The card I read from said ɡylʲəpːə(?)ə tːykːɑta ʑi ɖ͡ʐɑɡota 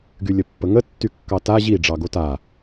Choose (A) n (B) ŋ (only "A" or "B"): B